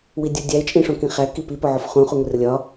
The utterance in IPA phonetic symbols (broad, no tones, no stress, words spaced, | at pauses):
widʲudʲæɪ̯ t͡ʃʼĩʂõkĩχæ kipi poʕofχũ χuŋʷirlʲɒ